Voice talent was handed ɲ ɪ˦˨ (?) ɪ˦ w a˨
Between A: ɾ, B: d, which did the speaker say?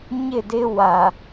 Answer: B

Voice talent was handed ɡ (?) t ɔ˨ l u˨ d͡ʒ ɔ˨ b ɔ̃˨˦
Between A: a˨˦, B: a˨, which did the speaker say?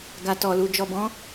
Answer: B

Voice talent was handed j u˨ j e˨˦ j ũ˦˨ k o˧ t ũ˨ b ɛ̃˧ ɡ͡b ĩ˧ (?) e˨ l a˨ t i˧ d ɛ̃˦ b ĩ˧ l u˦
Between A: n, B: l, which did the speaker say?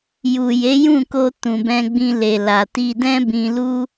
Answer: B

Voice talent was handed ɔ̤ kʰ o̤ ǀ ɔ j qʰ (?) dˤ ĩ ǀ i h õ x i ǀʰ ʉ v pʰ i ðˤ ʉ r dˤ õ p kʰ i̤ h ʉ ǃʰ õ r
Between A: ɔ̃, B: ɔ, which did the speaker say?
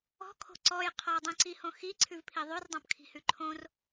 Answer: B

